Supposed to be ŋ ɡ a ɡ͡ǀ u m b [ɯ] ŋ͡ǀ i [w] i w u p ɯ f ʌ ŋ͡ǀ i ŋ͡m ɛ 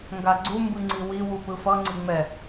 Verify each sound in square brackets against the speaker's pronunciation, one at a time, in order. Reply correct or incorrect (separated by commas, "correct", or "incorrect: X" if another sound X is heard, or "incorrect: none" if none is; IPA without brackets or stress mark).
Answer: correct, correct